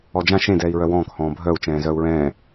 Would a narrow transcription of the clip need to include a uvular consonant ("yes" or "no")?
no